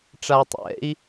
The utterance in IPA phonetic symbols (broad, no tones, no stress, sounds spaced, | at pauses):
ʈ͡ʂ a tˤ ɛ̰ i̯